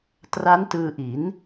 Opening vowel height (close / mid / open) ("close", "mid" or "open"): open